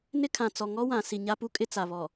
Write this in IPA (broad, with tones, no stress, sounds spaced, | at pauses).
n ɪ˦ kʰ ã˨ t͡s ɔ˨ ŋ ɔ˦ w ã˨ s i˨ ɲ a˦ p u˦ kʼ ɪ˦ t͡s a˨ β ɔ˨